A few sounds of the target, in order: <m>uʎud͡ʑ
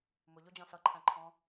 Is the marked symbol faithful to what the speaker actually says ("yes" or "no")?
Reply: yes